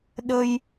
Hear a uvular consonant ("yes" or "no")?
no